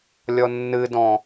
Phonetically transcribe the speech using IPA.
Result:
lʲɔnːɨdɔ̃

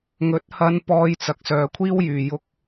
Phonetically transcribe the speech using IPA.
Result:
ŋɵ˨˥t̚hɐ˧n pɔː˧jt͡sɐ˨k̚sœː˨kʷʰiː˥w jyː˨jʊ˧k̚

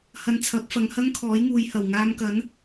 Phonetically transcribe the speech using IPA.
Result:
hɐ˧nt͡sʰɐ˨˥p̚fɐ˨˧ŋ hɐ˥ŋkʰɔː˨˥jŋuː˨jhɐ˨˩w ŋaː˧mkɐ˨˥n

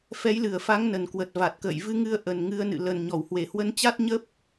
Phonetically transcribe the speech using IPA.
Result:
fɛ˨˦jlɨ˨˩ə̯fa˨˦ŋ nə˨˩nkwə˨˩t̚va˨˩t̚kə̰ː˧˨j vɨ˧ŋɨ˧ə̯ ʔə˨˩nŋɨ˨˦ə̯nɨ̰˧˨ lə˨˩n ɲɔ˧˩whwe˨˩hwə˧nt͡ɕa˦˥t̚ ɲə˦˥p̚

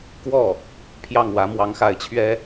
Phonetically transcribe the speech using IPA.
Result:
kwɔ˥˩ | pʰjɑ˥˩ŋwä˧˥ mwɑ˧˥ŋxa˧˥ɪ̯t͡ɕʰɥɛ˥

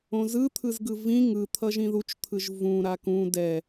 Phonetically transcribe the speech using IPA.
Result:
õzɯt̪ʰɯzɡɯ vĩ ŋɯt̪ʰʌʒ ĩðut͡ʃt̪ʰɯʒ vũ ɾakũ dɛ

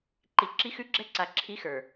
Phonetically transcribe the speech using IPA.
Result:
ǃi˨ ǁi˦xʉ˦ɡ͡ǁɛ˦ǀa˨ ǁʰi˦xə˞˨

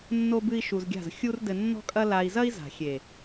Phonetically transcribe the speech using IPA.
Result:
nːo˦bɨ˦i̯ʃu˧zɡʲa̤˦˨z xʲu˦rdɘ˧nːɔ̤˦kʼɐ˦ la˧i̯ zɐ˦i̯za̤˨xʲe˨

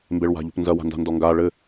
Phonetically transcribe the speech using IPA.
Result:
mbeɭwa̤ʎo̤pnzɐ wa̤nda̤ndɔŋɡa ɭɘ

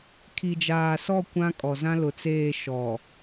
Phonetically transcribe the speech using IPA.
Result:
kʰi˨d͡ʒaː˨sɔ˦˨ kʷã˦kʼɔ˨ zã˦lʊ˨t͡seː˦˨ ʃɔ˨

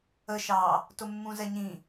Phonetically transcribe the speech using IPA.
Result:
ə ʃɑ | tʊmːũzɛɲĩ

